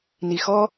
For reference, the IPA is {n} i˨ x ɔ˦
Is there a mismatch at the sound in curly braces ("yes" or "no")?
no